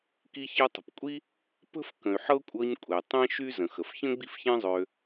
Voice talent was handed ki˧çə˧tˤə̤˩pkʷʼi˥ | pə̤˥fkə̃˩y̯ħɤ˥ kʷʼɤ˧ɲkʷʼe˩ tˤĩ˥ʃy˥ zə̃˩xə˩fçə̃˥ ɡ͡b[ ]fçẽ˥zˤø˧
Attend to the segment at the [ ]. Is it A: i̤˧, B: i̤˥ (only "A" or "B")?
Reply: B